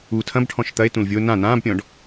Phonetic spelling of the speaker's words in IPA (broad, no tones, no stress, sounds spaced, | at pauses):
u tʰ ɐ̃ b ʈʰ ɔ̃ ʃ t̪ ɐ e̯ t ũ l vʲ o n ã n ãː b pʲ ɔ̃ ɖ